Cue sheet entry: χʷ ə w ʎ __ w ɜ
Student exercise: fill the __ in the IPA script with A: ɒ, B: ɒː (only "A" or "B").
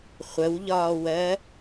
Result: B